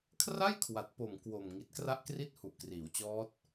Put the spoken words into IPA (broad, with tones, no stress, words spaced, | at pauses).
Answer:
kʰra˥˩jkʰwa˨˩t̚po˨˩m kwo˨˩m ŋi˨˩t̚kra˦˥ʔkri˦˥t̚ hu˨˩ʔkriː˩˦wt͡ɕɔː˦˥t̚